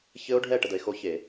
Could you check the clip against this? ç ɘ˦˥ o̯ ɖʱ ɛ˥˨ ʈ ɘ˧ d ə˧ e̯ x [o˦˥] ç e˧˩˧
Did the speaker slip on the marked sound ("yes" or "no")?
no